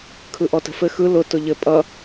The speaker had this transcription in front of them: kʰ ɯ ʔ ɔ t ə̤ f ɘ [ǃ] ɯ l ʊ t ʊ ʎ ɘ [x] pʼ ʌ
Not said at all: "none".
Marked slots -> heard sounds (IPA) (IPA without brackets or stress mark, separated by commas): x, none